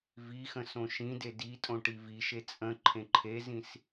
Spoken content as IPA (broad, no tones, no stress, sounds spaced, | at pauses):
v i x ə̃ s õ ʃ ĩ d e d i tʼ õ ʈ i v i ʃ e t͡sʼ ə̃ ǃʰ ẽ ǃʰ e z ĩ s